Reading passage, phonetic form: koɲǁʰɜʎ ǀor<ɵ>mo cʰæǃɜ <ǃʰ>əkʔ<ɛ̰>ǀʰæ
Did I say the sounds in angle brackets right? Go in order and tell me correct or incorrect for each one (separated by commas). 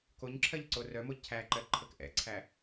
incorrect, correct, correct